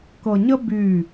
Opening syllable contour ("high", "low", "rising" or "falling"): low